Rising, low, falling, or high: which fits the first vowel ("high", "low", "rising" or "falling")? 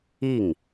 falling